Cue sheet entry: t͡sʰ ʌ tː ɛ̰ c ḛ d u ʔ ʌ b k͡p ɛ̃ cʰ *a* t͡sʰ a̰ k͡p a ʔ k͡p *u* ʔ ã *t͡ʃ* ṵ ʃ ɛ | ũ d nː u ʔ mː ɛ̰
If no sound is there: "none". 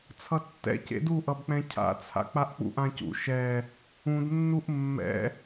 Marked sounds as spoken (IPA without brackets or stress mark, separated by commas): a̰, ṵ, c